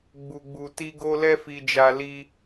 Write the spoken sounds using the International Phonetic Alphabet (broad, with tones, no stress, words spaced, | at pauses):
ɡ͡bu˨ɡ͡bu˨ti˧ ɡo˦lɛ˦fi˧d͡ʒa˧ li˧